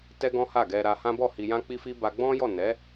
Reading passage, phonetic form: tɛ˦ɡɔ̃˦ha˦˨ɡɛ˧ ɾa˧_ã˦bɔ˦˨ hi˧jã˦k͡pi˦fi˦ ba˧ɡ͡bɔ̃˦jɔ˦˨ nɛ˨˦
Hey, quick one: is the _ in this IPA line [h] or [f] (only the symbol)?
h